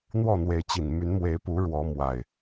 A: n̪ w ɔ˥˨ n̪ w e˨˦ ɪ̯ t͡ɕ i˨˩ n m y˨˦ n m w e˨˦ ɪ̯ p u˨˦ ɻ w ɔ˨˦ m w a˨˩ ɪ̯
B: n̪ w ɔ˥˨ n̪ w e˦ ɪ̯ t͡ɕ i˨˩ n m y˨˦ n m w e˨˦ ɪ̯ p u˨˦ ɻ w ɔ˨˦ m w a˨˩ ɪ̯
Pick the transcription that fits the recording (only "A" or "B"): A